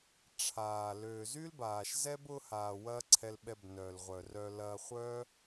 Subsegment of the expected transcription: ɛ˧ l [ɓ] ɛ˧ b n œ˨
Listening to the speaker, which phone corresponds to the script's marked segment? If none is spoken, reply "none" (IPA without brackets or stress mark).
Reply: ɓ